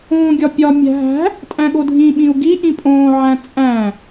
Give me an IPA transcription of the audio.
õːɡʲɒpʲɒ mʲæ̤ɦæ̤ | tʼæ̃ɠodʱĩ ɓĩu̯ɡi ʔĩpʼõːʕæ̃ t͡sʼæ̃

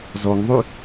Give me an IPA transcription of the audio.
zɔŋðˤʉ

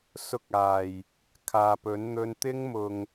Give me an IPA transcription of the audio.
sʊ˥k̚aː˨˩j | kʰaː˨pɵ˨˥n n̪ɵ˧nt̪ɪ˥ŋ mʊ˨ŋ

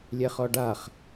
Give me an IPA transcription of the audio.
lʲɛχɔɖaχ

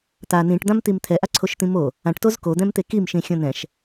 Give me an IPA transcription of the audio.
t̪a nĩʈd̪ãmt̪im t̪ʰɛʔaǀʰoʃt̪ĩ mo | ãʈtoz kod̪ɛ̃mt̪e kimʃĩxʲõ nɛ̃ʃ

